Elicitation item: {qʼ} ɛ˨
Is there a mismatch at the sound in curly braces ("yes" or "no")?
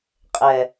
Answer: no